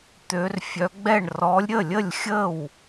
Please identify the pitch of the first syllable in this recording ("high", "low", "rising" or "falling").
rising